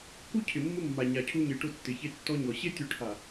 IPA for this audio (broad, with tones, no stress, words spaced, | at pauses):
ku˦ cʰɪ˨mːʊ˦mːa˨ ɲa˨cʰu˦ɲe˨ʈʊ˦ tːɪ˨ çe˦tːɔ˦ɲɔ˨ ɕe˦tʲu˨ʈʰa˨